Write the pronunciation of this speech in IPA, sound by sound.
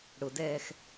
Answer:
ɽ ʊ d ɛː x

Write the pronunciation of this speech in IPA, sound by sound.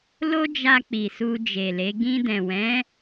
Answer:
l o˦ d͡ʒ a˧ k͡p i˨ s u˧ d͡ʒ e˨ l e˨˦ ɡ ĩ˧ d ɛ̃˨ w ɛ̃˨˦

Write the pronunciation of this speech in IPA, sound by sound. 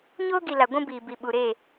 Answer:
ɲ oː˦ ɡ i˨ l a˨ ɡʷ ũ˦ b iː˨ b i˨ ɓ u˨ ɾ e˦˨

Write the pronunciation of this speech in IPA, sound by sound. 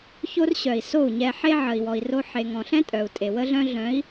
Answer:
ç o˦ r ɕ œ˨ i̯ s o˦˨ u̯ ɲ ɛ˧ ħ e˦ ʕ ə˨ i̯ w ɔ˨ i̯ r o˧ ħ e˨ ŋ ɔ̃˨ ɬ ɛ̃˦ tʼ œ˨ u̯ tʼ e˨ w ə˦ ɮ œ̃˦ ɮ œ̃˨˦ i̯

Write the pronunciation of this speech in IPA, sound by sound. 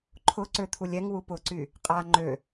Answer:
ǃʰ ʊ ǀ ø t̪ʰ u lʲ ɛ ŋ w u p ʊ ǀ y | qʼ a ŋ͡ǃ ø

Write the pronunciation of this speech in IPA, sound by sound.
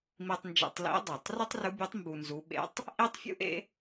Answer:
m i˧ tˤ n d͡ʒ ḛ˧ tˤ l ḭ˧˥ dˤ u˩ tˤ r ʊ˥ tˤ r ʊ˧˥ bʲ œ˧˥ tˤ m b u˧ n z u˧˥ ɓ ḛ˧˥ tˤ | ʔ i˥ tˤ fʲ ṵ˥ ʔ ḛ˥

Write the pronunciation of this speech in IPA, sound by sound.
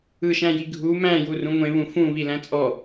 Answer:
ɯ ʃ æ̃ j i ɡʱ u m æ̃ j u r ũ ŋʷ ẽ β ũ f ũ β i l æ̃ t͡sʼ ɔ

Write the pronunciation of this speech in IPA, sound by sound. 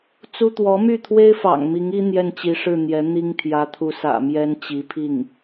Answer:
t͡s u˥ t̪ w ɔ˧˥ m y˥˩ t̪ʰ w e˥ ɪ̯ f ɑ̰˨˩ ŋ m i˧˥ ŋ i˥ n̪ j ɛ˥˩ n t͡ɕ i˧˥ ʂ ɻ̩˥˩ n̪ j ɛ˧˥ n̪ i˥ ŋ t̪ʰ j ä˧˥ t̪ʰ u˧˥ s ä̰˨˩ m j ɛ˥ n t͡ɕ i˧˥ pʰ i˥˩ ŋ

